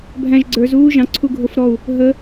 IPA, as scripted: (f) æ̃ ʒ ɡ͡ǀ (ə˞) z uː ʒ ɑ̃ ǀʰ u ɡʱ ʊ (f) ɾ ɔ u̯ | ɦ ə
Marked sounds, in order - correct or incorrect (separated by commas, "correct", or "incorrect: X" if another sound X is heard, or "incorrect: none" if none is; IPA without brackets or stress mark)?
incorrect: bʱ, correct, correct